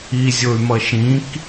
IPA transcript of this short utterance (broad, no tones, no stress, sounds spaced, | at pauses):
i zʲ o y̯ m ʌ ʃ ĩ k